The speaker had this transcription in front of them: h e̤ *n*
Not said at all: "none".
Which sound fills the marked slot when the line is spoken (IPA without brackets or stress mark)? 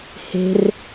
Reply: r